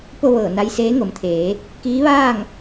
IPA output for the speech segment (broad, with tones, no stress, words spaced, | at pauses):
po˥˨ʋɤː˧˩ na˧jseː˧˥ŋo˩˧mt̪ʰeː˩˧ | kiː˧˥ʋaː˥˨ŋ